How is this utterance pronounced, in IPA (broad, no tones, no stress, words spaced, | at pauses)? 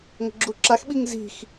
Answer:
ŋə̤ɡ͡ǁuǁaxɓiŋ zi̤x